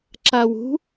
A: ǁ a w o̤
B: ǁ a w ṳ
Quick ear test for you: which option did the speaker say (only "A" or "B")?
B